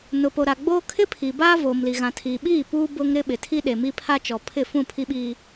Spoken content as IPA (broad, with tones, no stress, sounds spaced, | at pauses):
n ʊ˨ p o˨ ɾ a˨ ɡ͡b oː˦ kʰ ɪ˦ pʰ iː˨ b aː˦ v oː˨ m l i˨ ɣ ã˨ tʰ iː˨ ɓ iː˦˨ p uː˦ b ʊ˦ ŋ ɾ ɪ˦ ɓ ɪ˨ tʰ i˦ ɗ e˨ m i˦ pʰ a˦ t͡ʃ ɔ˨ pʰ ɪ˦˨ f ũ˦˨ pʰ i˦ ɓ iː˦